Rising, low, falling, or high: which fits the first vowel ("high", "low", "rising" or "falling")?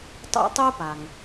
high